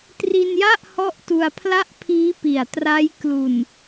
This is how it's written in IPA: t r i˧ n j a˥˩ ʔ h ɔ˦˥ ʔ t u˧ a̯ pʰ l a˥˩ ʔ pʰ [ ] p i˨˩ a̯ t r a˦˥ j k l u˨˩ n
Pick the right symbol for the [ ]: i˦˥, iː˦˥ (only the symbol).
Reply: iː˦˥